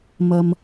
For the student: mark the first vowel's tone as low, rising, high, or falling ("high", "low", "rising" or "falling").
high